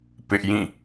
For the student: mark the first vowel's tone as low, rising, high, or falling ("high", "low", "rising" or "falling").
high